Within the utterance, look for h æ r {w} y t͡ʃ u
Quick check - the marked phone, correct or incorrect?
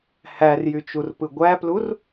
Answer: incorrect